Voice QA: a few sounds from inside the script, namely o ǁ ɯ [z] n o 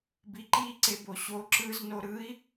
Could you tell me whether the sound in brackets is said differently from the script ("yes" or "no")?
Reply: no